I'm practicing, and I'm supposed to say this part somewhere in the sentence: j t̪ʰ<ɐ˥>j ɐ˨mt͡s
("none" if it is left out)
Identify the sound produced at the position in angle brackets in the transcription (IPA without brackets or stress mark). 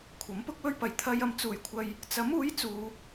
ɐ˧